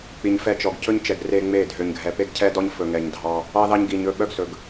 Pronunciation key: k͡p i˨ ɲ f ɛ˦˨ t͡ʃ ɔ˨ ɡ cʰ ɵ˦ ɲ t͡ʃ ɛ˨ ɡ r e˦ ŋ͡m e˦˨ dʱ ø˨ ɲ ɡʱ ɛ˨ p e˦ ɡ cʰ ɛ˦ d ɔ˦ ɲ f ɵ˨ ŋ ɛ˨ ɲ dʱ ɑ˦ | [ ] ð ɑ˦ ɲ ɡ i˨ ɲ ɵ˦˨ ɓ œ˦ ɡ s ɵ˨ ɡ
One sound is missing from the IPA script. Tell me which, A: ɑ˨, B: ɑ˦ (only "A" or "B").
B